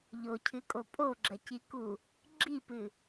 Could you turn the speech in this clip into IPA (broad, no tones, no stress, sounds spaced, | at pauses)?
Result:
ʎ o cʰ ɨ kʼ o pʼ o ɡ͡ǁ ɐ c i k u | ɡ͡ǁ i p ɨ